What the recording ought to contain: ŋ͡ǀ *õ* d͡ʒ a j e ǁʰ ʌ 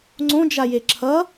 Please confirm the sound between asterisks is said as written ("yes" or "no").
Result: yes